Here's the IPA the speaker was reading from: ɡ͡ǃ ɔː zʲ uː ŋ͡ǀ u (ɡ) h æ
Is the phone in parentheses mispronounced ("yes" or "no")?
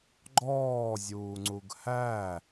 no